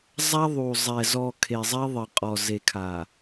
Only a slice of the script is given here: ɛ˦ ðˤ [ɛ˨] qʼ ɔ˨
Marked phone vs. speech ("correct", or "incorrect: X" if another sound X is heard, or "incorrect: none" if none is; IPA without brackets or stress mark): incorrect: ɪ˨